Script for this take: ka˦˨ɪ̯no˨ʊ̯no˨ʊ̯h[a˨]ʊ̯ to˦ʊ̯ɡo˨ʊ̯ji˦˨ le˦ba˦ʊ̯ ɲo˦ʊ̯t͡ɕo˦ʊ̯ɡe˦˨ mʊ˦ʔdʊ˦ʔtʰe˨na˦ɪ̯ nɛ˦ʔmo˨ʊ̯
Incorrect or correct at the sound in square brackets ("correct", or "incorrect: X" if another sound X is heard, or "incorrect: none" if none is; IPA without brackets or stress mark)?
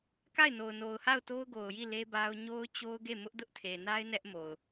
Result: incorrect: a˦˨